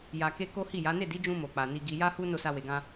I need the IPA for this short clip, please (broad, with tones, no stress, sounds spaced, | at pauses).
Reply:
j a˨ k e˧ k o˦ h i˦˨ j a˨˦ n e˦˨ d i˨˦ d͡ʒ ũ˧ m o˨ k͡p a˨ n i˧ ɡ i˧ j a˦ h u˦ n o˦˨ s a˧ w e˨ ɡ ã˧